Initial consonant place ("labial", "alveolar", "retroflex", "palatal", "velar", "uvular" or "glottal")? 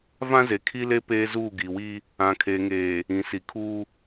labial